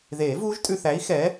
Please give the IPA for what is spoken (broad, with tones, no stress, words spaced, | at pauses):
ðeː˨˩˦vuː˦˥ʒtʼʉ˧θæ˨˥i̯ xɛ˨˥